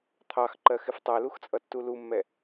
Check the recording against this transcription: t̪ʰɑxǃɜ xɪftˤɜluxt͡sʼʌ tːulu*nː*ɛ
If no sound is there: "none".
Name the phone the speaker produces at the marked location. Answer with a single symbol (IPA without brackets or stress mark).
mː